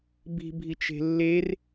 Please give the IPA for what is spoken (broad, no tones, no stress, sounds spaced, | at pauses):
b i̤ bʱ i t͡ʃ e̤ lː e r